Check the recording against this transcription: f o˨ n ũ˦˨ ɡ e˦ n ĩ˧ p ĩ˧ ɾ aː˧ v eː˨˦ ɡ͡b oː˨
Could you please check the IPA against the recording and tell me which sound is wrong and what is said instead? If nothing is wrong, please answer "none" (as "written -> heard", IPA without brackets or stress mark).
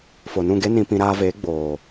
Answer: none